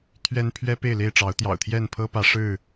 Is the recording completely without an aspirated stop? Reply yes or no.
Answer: no